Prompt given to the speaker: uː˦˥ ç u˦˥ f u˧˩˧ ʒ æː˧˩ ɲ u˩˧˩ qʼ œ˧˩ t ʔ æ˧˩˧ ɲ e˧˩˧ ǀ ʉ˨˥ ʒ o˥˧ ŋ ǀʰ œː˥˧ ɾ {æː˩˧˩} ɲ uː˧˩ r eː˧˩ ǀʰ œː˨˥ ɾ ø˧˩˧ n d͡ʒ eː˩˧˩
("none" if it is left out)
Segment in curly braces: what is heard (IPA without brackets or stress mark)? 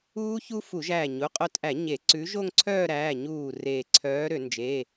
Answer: æː˩˧˩